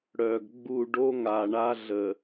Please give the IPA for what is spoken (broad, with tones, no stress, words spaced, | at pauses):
ɽœ˨ɡɡ͡bu˦˨ ɖo˦ŋa˨ɳa˦ ɮə˨